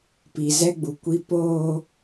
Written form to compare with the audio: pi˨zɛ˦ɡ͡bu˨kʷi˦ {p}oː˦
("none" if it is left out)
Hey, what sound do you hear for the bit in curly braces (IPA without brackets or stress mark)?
p